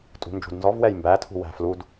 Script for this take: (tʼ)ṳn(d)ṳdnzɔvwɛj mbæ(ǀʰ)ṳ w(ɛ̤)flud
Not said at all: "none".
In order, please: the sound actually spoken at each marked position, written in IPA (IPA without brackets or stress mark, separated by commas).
tʼ, d͡ʒ, tʰ, æ̤